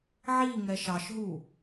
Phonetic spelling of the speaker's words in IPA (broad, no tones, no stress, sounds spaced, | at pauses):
ʕ i ŋ ɛ ʃ ɑ ʃ ɦ u